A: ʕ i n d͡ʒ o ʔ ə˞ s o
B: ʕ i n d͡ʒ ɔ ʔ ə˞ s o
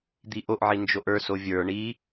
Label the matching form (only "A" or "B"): A